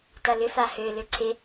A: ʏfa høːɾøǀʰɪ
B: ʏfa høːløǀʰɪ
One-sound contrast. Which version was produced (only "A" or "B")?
B